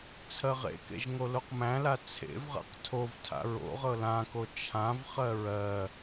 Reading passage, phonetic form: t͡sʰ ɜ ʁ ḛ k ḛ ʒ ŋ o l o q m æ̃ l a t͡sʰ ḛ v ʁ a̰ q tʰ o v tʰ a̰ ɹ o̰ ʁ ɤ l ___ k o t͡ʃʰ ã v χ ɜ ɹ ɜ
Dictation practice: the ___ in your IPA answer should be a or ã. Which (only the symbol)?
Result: ã